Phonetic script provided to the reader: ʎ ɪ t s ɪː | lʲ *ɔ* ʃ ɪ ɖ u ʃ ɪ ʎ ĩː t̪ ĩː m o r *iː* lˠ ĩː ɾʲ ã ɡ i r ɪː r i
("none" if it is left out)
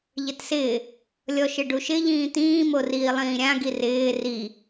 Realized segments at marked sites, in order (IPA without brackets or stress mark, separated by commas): ɔ, iː